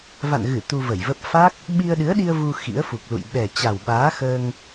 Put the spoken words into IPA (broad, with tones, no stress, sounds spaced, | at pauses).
v a̰˧˨ n ɣ ɨ˧˩ t̪ u˧ v ə˧˩ j v ə˦˥ p̚ f a˦˥ k̚ | ɓ i˧ ə̯ ɗ ɨ˨˦ ə̯ ɗ i˧ ə̯ v u˧ x ḭ˧˥ ə̯ f u˨˩ k̚ l ṵ˧˨ j ɓ ɛ˨˩ t͡ɕ a˨˩ w ɓ aː˨˦ x əː˧ ŋ